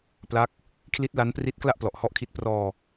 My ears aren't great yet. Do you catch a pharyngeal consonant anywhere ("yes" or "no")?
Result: no